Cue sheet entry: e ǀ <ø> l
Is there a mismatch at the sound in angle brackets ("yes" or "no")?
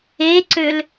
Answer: no